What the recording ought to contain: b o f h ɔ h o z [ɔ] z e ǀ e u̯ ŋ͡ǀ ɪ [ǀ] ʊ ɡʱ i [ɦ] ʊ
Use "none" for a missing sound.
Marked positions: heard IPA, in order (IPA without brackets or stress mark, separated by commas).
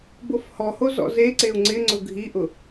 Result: ɔ̰, ŋ͡ǀ, ʔ